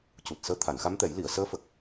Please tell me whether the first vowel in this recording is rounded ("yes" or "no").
yes